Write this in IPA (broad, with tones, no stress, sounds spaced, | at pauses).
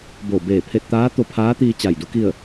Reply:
b o˧˩ b eː˧˩ pʰ e˧ t̚ t̪ aː˧˥ t̪ o˧ pʰ aː˧˥ t̪ iː˧ t͡ɕ a˧˩ j d u˧˥ k i˥˨ ə̯